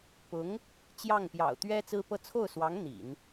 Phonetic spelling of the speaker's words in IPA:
pʊ˧˥ŋ | t͡ɕjɑ˥˩ŋpjɑ̰˨˩ʊ̯ t̪ɥɛ˥ t͡sɹ̩˥pɤ˥ t͡sʰo˥˩ʊ̯swɑ˧˥ŋ n̪ḭ˨˩˦n

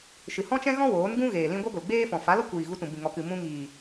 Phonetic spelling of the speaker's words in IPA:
ʃɨ˨hɔ̃˦t͡ʃɛ̃˦ɣɔ̃˦ woː˨˦nɡũ˦ ɣeː˨lĩ˦ ɡʷɛ˦ɡʷe˨lɡ͡beː˦fɔ̃˨ fa˨˦lɔ˦kʷiː˨ ɣu˧tũ˨ bĩ˨ŋɔ˨kɨ˨ mũ˧ŋiː˨

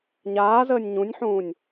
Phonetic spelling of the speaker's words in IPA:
ɲaːzəːnʲ ɲũnʲħũːnʲ

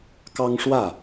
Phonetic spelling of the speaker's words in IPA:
kɑ˦ŋʂwä˥˨

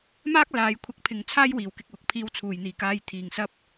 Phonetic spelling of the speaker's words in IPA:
maː˥k̚laː˨˧jkʷʰɐ˧k̚ pʰɪ˨ŋ t͡sʰaː˥jwiː˨wkɪ˧k̚wʊ˨k̚ pʰiː˧wt͡sʰuː˨˩jn̪iː˨˩kaː˧j t̪ʰiː˨˩ŋsɐ˧p̚

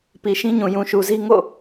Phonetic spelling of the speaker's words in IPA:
pi˨ʃĩ˦ɲũ˨ jũ˨ʃu˨zi˦ ŋo̰˦˨

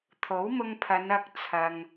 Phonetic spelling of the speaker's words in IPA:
t̪ʰo˨˥wmʊ˧ŋpʰɐ˨˧n ɐ˧k̚t͡sʰɐ˨ŋ

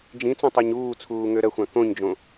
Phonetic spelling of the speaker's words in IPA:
d͡ʒĩt͡sõtˤɜɲ uːt͡sʰuː ŋøɾɜxʷã kõɲd͡ʒõ

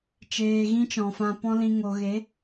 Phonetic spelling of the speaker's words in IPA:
t͡ʃeː˧ɣĩ˦t͡ʃɔ̃˨ fã˧pɔ̃˦lĩ˧ ŋo˨ɣe˨˦

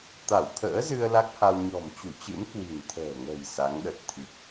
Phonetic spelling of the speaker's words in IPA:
t̪a˧˩wt̪ʰə̰ː˧˥zɨ˧ə̯ la˦˥k̚ha˧w ɲɔ̤˨˩mt͡ɕu˧˩t͡ɕɨ̰˧˥m kwi̤˨˩nt̪ʰə̤ː˨˩ŋə̤˨˩j sa˨˦ŋɗə˨˩t̚ t̪ʰi˨˩k̚

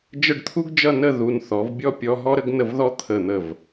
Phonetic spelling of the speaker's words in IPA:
d͡ʒə˥˧ɖt̪ʰu˥ɡd͡ʒʌ˥˧ nə˥˧ ðu˧n θɔ˩˧vbʲɔ˥˧pʲɔ˧ ɦɔ˥ɾə˥ɡnə˥˧vðɔ˥ t̪ʰə˧˩n̪ə˧˩v

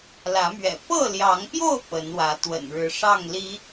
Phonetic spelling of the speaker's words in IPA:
lä˨˦mɥɛ̰˨˩ pɤ˥˨ljɑ˨˦ŋpjo˥˨ʊ̯ pə˨˦nwä˨˦ t̪wə̰˨˩nɻɻ̩˨˦ʂɑ˥˨ŋ li˨˦

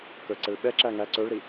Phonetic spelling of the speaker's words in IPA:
kə˞ǀɛɭɓɛǁæ ŋæ ǀə˞ɭɾi

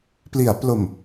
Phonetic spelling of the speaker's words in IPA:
pli˩˦a̯plo˨˩m

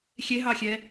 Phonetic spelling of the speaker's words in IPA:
xʲeɦɑxʲɛ

